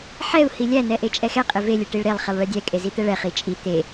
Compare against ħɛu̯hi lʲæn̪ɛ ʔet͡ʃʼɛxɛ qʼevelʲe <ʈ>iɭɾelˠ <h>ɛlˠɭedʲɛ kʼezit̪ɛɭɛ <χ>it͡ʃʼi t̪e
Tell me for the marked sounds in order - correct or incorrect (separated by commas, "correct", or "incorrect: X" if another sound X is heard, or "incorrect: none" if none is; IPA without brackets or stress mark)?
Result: correct, incorrect: χ, correct